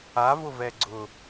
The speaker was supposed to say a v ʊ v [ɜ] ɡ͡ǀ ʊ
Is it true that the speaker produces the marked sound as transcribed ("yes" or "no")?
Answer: no